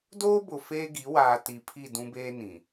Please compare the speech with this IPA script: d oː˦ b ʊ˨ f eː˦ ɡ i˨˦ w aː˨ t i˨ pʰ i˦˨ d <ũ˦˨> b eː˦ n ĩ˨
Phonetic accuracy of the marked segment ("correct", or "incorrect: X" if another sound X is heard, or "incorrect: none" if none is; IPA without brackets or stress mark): incorrect: ũ˦